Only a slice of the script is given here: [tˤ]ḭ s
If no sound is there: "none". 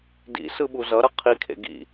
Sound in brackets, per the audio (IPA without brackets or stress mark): d